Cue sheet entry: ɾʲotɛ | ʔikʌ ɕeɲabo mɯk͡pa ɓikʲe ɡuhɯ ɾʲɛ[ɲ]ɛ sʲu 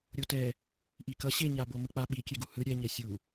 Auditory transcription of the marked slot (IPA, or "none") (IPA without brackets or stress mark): ɲ